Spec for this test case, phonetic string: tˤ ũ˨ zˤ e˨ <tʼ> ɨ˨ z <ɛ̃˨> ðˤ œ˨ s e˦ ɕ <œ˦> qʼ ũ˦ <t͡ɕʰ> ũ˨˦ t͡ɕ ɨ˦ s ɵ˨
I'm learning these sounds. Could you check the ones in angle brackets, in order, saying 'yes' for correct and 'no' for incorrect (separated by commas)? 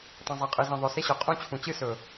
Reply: no, no, no, yes